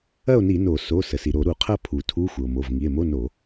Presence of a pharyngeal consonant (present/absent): absent